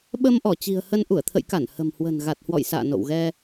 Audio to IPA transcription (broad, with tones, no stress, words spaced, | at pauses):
ɓə˧mʔɔ˧˩ t͡ɕi̤˨˩ə̯hə˧n ʔu˧˩ə̯t̪ʰə̰˧˨jka˧˩n hə̤˨˩mhwə̤˨˩n ɣa˨˩t̚hwɔ̰˧˨jsa̰ː˧˨ no̰˧˨wɣɛ˧